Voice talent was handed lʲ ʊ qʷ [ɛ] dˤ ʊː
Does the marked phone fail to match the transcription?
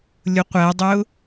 yes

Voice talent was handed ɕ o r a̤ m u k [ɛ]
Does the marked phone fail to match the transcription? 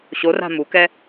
no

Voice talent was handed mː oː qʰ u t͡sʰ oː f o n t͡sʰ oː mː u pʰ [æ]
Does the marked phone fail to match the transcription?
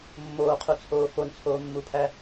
no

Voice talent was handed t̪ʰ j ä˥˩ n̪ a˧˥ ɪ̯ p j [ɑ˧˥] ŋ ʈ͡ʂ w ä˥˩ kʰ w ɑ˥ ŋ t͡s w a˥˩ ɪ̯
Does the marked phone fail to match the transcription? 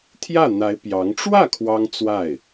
no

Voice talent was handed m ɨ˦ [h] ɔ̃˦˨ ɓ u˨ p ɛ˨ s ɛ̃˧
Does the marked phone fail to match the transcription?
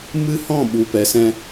no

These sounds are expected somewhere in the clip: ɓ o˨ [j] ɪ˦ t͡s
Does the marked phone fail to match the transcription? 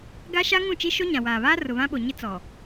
yes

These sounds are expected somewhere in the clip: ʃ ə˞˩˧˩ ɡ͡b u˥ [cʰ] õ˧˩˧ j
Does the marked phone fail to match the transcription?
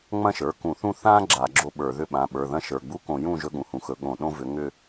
yes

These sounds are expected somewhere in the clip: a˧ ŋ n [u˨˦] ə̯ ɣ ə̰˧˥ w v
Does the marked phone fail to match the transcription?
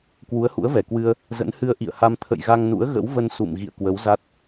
yes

